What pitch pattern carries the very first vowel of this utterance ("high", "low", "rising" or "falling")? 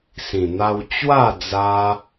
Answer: low